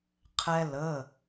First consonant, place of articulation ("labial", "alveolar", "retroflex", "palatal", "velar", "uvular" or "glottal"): uvular